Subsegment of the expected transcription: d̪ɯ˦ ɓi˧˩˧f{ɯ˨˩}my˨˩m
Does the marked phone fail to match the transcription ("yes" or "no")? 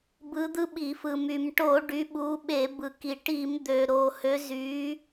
no